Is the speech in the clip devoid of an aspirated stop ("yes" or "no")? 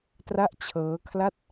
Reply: no